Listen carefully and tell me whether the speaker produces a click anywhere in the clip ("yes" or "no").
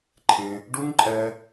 yes